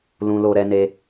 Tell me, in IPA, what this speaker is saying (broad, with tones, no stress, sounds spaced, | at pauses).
l ũ˧ l o˧ ɾ ɛ˧ n e˧